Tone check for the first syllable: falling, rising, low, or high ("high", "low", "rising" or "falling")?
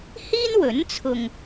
high